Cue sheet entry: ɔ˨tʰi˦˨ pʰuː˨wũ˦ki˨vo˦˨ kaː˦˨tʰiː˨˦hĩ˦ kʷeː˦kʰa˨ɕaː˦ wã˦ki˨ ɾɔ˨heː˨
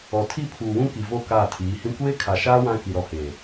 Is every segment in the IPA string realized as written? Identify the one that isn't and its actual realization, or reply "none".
ɕ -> ʃ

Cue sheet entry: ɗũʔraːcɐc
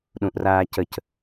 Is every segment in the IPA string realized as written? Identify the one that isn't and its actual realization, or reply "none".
ɐ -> ə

